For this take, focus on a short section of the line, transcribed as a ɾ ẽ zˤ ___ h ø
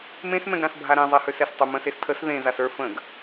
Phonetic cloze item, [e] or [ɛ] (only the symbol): e